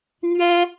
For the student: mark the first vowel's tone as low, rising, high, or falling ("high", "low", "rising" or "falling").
high